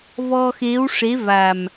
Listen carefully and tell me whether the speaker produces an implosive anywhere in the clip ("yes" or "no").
no